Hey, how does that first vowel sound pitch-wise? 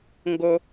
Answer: low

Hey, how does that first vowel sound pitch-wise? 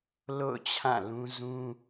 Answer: falling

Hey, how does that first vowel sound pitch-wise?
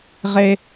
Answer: high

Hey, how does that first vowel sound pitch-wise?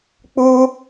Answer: high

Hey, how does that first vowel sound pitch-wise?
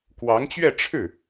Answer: rising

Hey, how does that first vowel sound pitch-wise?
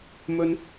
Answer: high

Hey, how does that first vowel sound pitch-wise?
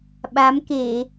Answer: rising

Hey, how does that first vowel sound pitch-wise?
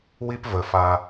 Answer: high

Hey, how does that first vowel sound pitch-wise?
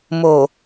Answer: low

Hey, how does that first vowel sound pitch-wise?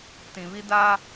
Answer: low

